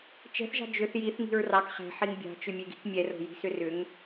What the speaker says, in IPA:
t͡ʃɛ̤θʒɑ̤ d͡ʒʏθ jiθŋi̤ɹ rɑk χɛ̤ħiŋ bʲɑ̤t͡ʃʏmʲeɡi̤k mʲɛro̤ji̤sʏ rʏŋ

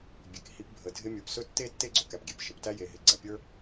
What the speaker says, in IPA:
bʲe˨k hi˧p bʱə˨dʱɪ˧ mʲə˞˨psɵ˧ tːe˦ tːe˦ɡ͡ǀɵ˧ kæ˨pɡʲe˨p ʃə˨ptæ˦ je˨ɦɪ˨ ɡ͡ǀæ˨pʲə˞˧

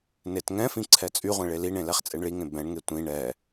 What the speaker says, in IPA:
netŋɛ̃fĩ ǀʰɛt͡sʼyʁʷẽ ɭeliɳẽ lɛχt͡sʼeɳɭiŋẽ bɛ̃ɳŋe tʷĩ ɳɛ

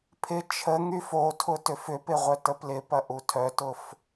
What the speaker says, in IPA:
pʰɪ t͡ʃʰə ŋyfotʰʊ tʏfʏpɪ ʁʷœtəplɪpɐ ʔutʰœtʊf

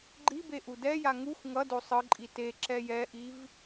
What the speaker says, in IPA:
ɡ͡ǃibe ʔudɛja ŋuxʷ ŋʌdo sˤɯǃʼi te ǁɛjɛʔiv

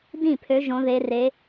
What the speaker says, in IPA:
dĩ˥˩pʰø˨˦ ʒõ˨˦ðe˨˦ re˨˦

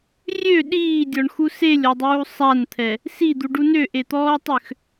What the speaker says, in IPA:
rʲø ɗiːdʲɔɳxu selʲɔdˤuː sˤant̪ʰɛ | sid̪uɖu nøʔet̪ɔːtˤøx

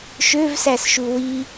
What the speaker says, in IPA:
ʃøvsæsʃu wi

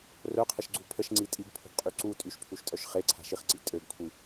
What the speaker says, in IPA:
rœqʰəʃɡ͡ǀu pʰəʃŋ͡ǀi tʼiɡpʰo̤ɡqʼy ǀu tʼyʃpʰuʃtʼœʃ χeǀʰa̤ʃiχǀḭ tʼøɡkʷʰi

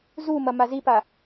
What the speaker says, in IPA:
zumɐ mazipa

